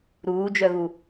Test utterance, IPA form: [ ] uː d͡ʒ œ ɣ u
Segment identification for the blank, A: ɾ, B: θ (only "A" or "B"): A